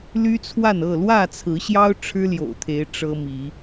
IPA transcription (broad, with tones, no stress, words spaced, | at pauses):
ly˦t͡sʰwa˥˨nɤ˥˨ lwä˥˨t͡sʰɹ̩˨˦ɕjɑ˦ʊ̯ ʈ͡ʂʰɻ̩˦ljo̰˨˩ʊ̯t̪ʰe˨˦ɪ̯ ʈ͡ʂɤ˦mi˨˦